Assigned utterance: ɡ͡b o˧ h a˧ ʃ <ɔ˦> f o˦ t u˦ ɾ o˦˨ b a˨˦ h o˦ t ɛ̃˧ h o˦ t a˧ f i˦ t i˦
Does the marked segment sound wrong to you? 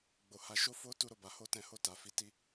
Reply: yes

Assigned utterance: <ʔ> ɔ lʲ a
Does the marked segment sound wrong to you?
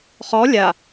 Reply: yes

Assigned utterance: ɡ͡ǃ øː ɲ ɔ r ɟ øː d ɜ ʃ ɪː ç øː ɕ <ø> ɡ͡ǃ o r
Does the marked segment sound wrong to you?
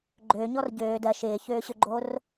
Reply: no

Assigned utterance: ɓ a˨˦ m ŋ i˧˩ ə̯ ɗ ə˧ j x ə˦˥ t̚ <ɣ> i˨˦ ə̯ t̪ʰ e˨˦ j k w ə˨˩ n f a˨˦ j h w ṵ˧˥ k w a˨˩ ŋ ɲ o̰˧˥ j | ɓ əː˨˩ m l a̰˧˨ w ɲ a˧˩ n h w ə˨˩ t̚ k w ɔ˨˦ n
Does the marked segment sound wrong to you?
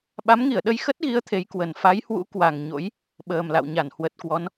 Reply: no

